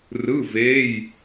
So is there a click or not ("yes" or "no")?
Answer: no